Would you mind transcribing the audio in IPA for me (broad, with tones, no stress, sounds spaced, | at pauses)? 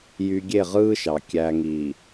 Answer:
j y˨ ɡʲ e˦˨ ʁ ɯː˦ ʃ ɑ˨ kʲ æ˨ ŋ i˨